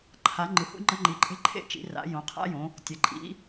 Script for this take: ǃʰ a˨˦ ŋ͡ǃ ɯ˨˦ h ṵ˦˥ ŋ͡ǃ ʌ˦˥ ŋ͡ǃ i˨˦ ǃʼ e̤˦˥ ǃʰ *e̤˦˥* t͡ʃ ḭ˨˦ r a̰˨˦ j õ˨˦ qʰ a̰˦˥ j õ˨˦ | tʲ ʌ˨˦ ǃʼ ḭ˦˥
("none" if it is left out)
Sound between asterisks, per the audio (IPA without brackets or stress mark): ḛ˦˥